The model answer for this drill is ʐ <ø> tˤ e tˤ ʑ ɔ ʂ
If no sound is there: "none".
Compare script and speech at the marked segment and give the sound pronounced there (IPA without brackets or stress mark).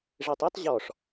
e